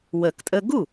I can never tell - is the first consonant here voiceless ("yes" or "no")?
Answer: no